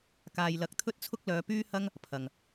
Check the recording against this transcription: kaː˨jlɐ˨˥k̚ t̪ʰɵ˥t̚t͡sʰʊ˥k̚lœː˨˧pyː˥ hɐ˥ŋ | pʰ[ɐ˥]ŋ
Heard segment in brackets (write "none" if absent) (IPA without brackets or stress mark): ɐ˨